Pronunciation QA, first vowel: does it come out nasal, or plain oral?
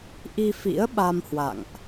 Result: oral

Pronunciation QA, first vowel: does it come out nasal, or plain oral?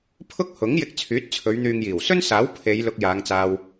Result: oral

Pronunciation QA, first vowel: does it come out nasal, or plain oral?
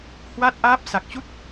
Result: oral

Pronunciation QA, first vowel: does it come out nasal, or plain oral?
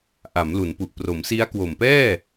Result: oral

